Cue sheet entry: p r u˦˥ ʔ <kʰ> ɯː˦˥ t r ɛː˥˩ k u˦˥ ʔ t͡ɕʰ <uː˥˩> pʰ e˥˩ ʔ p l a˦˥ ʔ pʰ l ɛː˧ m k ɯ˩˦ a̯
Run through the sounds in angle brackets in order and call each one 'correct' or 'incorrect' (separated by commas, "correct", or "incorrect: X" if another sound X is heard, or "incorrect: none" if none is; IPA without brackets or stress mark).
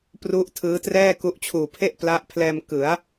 incorrect: tʰ, incorrect: uː˨˩